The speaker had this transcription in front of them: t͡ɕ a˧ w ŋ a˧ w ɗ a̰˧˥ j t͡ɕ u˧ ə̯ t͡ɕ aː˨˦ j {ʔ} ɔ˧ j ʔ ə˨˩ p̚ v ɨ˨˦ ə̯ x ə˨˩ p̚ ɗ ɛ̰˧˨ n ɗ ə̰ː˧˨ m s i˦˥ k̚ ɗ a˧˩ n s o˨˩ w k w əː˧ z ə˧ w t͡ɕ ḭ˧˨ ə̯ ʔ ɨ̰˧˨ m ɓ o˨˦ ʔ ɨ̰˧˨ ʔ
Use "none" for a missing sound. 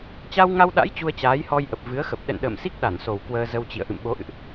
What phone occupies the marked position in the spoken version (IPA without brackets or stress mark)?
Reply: h